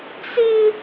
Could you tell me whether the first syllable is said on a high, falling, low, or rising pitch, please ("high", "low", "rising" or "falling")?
high